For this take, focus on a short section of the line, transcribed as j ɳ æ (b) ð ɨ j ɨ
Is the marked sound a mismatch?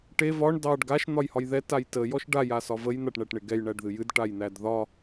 yes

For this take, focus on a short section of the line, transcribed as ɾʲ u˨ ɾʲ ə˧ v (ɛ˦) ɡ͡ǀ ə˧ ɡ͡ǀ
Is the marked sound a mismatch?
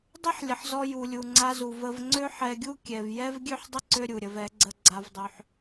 yes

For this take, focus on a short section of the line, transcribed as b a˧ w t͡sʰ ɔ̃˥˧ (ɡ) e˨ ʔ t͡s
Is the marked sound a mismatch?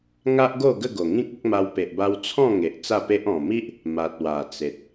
yes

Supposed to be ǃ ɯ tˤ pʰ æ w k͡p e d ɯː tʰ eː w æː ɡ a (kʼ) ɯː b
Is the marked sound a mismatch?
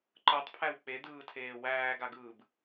yes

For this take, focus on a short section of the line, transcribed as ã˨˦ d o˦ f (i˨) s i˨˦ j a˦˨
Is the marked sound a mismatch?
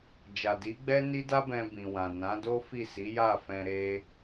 yes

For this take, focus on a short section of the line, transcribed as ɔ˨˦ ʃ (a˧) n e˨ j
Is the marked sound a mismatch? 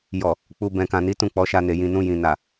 no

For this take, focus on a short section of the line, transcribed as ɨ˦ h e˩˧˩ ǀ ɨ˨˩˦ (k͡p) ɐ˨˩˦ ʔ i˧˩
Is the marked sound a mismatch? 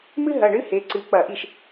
no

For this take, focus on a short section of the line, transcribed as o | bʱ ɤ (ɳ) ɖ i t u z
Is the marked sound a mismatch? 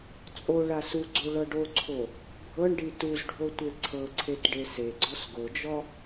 no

